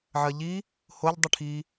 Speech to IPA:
ʕ ɜ ʎ i | h o ʎ dˤ i ʈʰ i

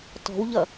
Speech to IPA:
t ɔ̤ w ʎ ʌ

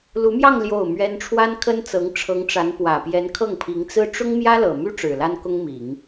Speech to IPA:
l u˧˥ m j ɑ˥˧ ŋ l j o˥˩ ʊ̯ m ɥ ɛ˥ n ʈ͡ʂʰ w a˥ n kʰ ə˥ n t͡s ɤ˧˥ ŋ ʈ͡ʂʰ ɤ˧˥ ŋ ʈ͡ʂ a˧˥ n p w ä˨˩ p j ɛ˧˥ n kʰ ɤ˥˩ ŋ pʰ i˧˥ ŋ t͡s ɹ̩˥ ʈ͡ʂ ʊ˥ ŋ m j ä˥ l ɤ˨˩ m y˥ ʈ͡ʂ ɻ̩˨˩ l a˥ n k ʊ˥ ŋ m i˨˩˦ ŋ

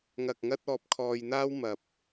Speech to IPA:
ŋ ɐ˨ k̚ ŋ ɐ˧ t̚ ɔː˧ p̚ kʰ ɔː˧ j n̪ aː˥ w m ɐ˨ p̚

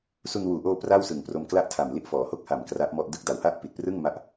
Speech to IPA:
s u˧ n w uː˨˩ ʔ oː˧ p r a˥˩ w s ɯ˨˩ ŋ p r o˧ m k l a˥˩ ʔ tʰ a˨˩ m l i˦˥ ʔ f ɔː˩˦ h o˥˩ k̚ h a˨˩ m k r a˦˥ ʔ m ɔ˥˩ ʔ d ɯ˦˥ k̚ d a˩˦ w h a˥˩ ʔ p i˨˩ t̚ p r ɯ˥˩ ŋ m a˥˩ ʔ

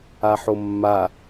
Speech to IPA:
a ħ o mː a

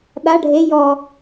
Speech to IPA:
ɗ a ɖʱ e j ɔ

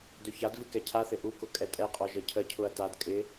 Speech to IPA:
d ɵ ç a d v ɨ k ɛ cʰ a θ ɪ ʔ u k ʊ kʼ ɛ tʼ ɛ qʼ ɔ ʒ ə cʰ ə cʰ ʊ ɐ̯ t a d kʼ ɪ

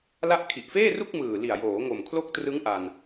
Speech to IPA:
l a˦˥ ʔ kʰ i˨˩ ʔ f eː˥˩ r u˥˩ k̚ m ɯː˨˩ l i˨˩ a̯ j oː˩˦ ŋ o˨˩ m kʰ l o˦˥ k̚ t r ɯ˦˥ ŋ ʔ a˧ n

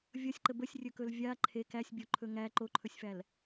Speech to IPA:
vʲ ʌ sʲ ǃ ə b ə sʲ rʲ ɵ k ɵ l vʲ a ǃʰ e k æ sʲ bʲ o ǃʰ ɵ ŋ æ ǃ o ǃʰ ɵ sʲ f æ l

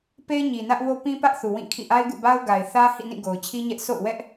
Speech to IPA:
p e˦ ɪ̯ ɲ i˨ n ä˦ ʔ w o˦ p ĩ˦ p ä˦ ʔ θ u˨ w ĩ˦˨ kʰ ḭ˦˨ ʔ a˦ ɪ̯ ɡ ṵ˦˨ b a˦ ʊ̯ ɡ a˨ ɪ̯ θ ä˦ h ḭ˦˨ n ĩ˦˨ ɡ o˨ ʊ̯ t͡ɕʰ i˦ ɲ ɛ˦ ʔ s o̰˦˨ ʊ̯ w ɛ˦ ʔ

